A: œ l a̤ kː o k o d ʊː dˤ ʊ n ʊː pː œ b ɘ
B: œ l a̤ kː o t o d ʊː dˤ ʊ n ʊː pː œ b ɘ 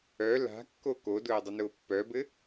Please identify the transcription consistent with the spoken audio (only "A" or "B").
A